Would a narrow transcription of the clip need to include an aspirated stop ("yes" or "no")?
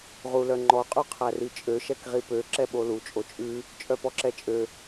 yes